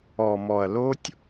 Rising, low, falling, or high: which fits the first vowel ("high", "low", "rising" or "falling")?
low